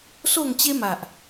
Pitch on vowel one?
falling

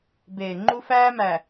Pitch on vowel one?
low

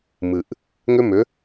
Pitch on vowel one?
low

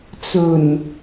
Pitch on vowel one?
low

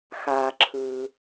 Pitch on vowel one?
low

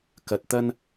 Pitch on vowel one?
low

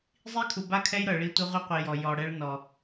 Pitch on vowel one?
high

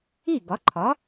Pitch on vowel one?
falling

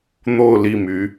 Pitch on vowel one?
falling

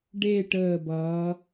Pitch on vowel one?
falling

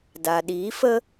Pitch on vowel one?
low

